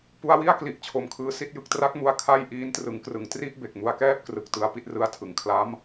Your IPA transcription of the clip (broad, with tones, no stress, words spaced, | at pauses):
pu˧a̯wi˥˩a̯kli˨˩ʔ t͡ɕʰo˨˩mkʰɯː˦˥si˦˥t̚jɯ˦˥k̚ tra˦˥k̚mu˧a̯ kʰa˥˩j ʔiː˦˥ntrɯ˩˦ŋkrɯ˩˦ŋ tri˥˩ʔ be˨˩k̚mu˧a̯kɛː˥˩p̚ krɯ˨˩k̚ tɯ˦˥a̯pi˦˥t̚rɯ˦˥a̯tʰɯ˩˦ŋ kʰla˦˥m